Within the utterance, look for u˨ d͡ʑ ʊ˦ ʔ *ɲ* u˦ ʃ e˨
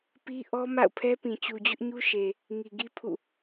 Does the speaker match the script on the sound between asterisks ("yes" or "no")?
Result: yes